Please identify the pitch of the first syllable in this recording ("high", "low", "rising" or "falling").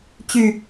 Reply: low